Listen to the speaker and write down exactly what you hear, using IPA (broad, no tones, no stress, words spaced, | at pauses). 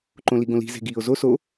ǃõliɡõli̤ ze̤ɡiːo̯zo so